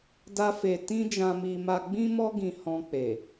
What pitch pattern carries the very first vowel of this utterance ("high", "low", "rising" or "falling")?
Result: high